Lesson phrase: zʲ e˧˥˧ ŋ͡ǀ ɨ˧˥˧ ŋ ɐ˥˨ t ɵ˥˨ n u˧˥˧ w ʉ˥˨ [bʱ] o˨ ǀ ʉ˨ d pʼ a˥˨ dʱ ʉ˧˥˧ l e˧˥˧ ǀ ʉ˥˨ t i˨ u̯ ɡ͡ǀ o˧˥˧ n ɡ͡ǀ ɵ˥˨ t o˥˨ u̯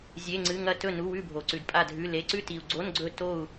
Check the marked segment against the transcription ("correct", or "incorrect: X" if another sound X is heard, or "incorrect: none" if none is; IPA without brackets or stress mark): correct